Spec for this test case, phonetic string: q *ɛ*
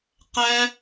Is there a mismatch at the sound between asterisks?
no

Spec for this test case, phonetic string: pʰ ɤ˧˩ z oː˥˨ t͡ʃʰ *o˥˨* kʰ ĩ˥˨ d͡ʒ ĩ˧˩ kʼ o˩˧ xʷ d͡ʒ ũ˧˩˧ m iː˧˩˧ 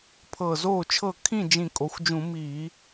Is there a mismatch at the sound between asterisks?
yes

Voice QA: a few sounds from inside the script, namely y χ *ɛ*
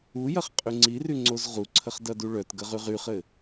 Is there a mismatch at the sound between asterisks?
yes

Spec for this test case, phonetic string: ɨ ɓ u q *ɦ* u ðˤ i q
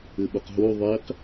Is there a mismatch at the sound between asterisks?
no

